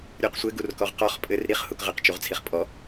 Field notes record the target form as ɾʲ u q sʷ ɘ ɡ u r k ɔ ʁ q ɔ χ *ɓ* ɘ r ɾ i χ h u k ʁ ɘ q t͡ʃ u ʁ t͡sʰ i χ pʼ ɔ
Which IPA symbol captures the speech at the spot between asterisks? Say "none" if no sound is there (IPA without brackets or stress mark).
pʼ